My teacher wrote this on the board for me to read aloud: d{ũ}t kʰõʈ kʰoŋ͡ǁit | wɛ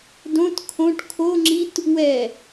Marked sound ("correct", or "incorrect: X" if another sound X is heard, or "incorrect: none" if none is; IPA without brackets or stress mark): incorrect: õ